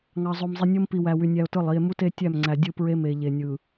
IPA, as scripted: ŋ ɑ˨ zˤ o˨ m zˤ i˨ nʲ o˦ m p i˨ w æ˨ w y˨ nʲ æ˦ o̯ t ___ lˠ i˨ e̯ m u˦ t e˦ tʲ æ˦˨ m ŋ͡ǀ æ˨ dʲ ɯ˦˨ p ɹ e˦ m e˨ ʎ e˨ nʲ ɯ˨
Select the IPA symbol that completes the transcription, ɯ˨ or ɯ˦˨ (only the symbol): ɯ˦˨